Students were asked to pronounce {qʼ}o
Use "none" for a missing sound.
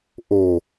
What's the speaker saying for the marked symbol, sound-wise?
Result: ʔ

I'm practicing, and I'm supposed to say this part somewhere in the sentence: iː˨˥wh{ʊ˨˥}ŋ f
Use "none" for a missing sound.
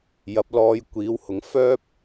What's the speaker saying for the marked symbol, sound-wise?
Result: ʊ˨˥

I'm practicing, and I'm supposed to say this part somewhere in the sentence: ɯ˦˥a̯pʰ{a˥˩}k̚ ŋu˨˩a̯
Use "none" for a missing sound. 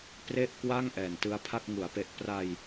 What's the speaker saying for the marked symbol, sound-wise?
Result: a˥˩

